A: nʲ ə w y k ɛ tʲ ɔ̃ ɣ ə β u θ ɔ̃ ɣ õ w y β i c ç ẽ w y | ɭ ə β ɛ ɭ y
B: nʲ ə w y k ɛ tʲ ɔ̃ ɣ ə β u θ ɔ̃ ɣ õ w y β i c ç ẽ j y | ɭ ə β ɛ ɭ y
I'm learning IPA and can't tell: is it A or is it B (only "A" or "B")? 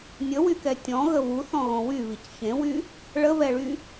A